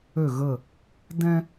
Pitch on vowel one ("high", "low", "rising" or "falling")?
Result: falling